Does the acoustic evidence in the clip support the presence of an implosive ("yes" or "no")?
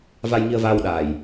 yes